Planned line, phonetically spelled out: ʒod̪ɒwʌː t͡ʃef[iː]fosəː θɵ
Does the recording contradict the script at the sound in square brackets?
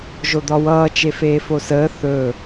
yes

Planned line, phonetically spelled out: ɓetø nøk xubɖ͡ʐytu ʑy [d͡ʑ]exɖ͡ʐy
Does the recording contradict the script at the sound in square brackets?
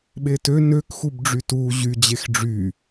no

